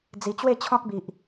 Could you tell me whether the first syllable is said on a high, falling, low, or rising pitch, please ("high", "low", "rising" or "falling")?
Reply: low